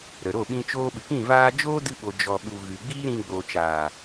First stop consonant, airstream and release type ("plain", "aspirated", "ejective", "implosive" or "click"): implosive